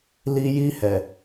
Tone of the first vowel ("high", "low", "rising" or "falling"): high